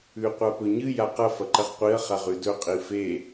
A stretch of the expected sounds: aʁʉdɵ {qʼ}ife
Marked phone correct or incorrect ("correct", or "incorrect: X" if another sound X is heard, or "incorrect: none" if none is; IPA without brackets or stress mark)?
correct